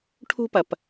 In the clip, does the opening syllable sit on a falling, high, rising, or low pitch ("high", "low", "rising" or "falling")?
high